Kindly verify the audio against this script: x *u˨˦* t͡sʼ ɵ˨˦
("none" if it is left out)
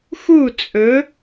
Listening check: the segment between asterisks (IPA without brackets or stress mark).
u˦˨